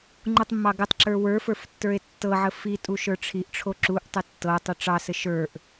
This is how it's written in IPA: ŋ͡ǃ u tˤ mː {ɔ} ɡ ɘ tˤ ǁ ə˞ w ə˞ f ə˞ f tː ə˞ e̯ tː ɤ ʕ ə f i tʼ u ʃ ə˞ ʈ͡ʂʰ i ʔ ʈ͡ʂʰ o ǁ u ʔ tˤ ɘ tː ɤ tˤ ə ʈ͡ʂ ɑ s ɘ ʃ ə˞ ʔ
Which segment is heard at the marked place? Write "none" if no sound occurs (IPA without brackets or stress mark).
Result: ɑ